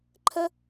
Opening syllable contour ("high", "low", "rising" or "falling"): high